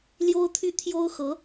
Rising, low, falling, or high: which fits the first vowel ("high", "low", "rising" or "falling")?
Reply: high